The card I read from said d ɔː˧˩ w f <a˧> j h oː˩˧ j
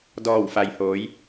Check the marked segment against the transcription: incorrect: a˩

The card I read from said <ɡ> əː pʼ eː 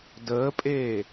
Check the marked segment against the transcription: incorrect: d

